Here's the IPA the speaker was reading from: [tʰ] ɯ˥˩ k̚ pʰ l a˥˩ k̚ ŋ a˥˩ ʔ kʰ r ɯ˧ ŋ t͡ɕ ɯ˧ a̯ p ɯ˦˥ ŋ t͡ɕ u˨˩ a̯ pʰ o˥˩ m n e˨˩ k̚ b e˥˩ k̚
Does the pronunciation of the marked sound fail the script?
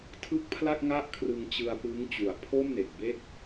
no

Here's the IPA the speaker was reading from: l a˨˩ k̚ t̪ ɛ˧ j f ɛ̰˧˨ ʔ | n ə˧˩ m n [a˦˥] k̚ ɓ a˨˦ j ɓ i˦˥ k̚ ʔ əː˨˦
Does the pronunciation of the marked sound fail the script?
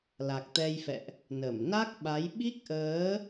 no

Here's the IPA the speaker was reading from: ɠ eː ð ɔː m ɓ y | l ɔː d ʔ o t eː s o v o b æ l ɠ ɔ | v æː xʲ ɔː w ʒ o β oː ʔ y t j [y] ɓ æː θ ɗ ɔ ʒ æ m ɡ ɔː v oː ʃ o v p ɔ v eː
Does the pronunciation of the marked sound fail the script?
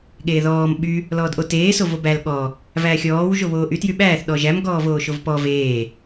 no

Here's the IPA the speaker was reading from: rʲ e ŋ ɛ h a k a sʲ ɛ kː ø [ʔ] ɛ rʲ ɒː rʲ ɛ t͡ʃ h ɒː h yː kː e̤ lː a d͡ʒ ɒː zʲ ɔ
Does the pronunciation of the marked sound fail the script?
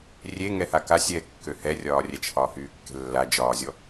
yes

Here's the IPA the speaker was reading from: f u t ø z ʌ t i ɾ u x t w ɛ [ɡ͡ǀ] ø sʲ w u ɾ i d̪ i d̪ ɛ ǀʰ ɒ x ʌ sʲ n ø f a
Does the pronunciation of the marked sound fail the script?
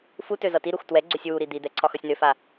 no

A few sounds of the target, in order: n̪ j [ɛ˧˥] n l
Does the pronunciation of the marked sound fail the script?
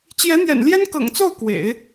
yes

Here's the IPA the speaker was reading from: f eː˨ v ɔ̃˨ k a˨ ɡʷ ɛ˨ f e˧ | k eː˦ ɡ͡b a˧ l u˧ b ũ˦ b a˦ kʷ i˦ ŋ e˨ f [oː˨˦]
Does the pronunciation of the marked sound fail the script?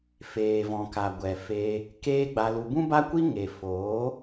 no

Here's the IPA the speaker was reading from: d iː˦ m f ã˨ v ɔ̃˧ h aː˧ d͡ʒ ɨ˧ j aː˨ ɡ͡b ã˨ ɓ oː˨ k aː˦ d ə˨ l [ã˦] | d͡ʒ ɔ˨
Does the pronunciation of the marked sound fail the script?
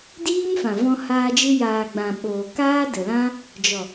no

